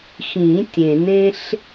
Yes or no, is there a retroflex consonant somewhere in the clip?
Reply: no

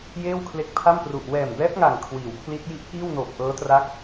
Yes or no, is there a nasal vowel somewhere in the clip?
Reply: no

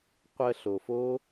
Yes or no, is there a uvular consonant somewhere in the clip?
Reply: yes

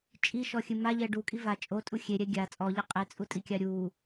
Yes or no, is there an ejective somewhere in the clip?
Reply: yes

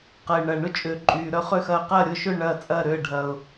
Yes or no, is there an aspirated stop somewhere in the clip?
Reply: no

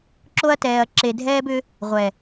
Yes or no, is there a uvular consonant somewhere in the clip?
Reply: yes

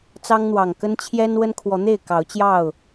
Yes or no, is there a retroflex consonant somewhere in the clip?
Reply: no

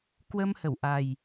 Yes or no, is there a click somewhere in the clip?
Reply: no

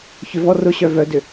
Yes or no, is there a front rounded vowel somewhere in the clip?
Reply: yes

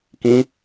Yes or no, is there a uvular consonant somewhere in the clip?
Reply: no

